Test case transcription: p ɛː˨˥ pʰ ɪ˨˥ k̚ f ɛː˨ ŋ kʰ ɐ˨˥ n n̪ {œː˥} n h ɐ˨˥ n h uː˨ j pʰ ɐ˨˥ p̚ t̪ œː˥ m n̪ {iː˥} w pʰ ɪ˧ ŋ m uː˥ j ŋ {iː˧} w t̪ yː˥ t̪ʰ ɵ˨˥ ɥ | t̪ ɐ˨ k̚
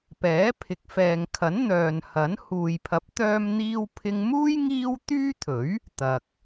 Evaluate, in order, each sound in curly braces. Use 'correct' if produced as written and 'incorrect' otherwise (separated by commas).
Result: incorrect, correct, incorrect